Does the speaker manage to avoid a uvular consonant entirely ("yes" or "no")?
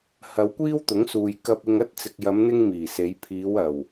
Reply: yes